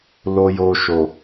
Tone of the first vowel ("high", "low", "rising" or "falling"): low